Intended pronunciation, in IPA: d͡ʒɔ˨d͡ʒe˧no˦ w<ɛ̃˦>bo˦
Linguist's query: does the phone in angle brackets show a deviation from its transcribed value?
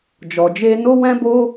no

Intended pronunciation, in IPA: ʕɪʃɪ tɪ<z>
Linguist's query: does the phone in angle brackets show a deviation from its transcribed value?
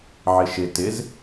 no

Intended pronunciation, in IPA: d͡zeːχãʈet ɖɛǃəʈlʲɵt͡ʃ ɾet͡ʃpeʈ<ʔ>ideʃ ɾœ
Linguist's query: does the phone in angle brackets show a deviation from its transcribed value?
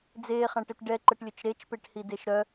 yes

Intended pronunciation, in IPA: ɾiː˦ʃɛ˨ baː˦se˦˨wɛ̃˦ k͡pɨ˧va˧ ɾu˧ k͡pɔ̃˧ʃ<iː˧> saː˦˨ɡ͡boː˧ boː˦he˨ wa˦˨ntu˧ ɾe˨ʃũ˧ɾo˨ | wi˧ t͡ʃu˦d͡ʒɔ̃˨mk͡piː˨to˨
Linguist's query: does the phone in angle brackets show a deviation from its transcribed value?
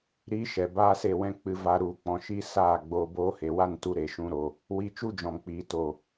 yes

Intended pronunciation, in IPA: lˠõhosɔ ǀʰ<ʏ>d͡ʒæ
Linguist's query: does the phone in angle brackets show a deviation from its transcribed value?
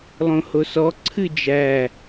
yes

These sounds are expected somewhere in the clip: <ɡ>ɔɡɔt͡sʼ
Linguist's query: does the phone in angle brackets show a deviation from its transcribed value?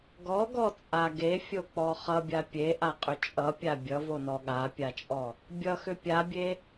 no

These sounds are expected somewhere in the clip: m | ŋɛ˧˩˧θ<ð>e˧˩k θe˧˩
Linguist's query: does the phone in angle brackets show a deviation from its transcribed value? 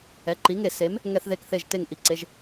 no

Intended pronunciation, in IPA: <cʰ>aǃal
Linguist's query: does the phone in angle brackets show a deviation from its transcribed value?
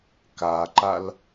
yes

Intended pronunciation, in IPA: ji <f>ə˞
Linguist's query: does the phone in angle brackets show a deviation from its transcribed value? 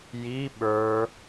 yes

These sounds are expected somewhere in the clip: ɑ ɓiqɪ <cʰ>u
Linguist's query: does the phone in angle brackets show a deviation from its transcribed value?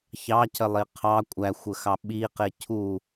no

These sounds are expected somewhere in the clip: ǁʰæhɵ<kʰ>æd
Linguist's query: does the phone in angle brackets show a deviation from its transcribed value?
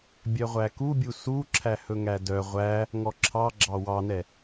yes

